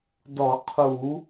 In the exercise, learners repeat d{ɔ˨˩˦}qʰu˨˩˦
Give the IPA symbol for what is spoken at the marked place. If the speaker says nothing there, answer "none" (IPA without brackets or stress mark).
ɔ˨˩˦